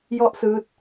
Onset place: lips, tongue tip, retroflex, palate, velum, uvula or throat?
palate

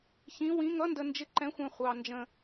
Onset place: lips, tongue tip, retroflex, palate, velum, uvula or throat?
palate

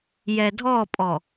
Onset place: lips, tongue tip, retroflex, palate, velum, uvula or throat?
palate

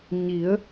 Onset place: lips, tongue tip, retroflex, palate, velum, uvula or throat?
palate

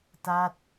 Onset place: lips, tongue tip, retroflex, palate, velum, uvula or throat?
tongue tip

